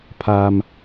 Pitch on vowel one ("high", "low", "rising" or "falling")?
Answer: high